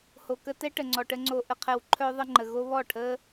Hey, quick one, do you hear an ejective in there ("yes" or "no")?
no